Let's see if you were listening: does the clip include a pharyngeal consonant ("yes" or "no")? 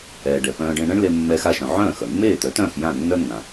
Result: yes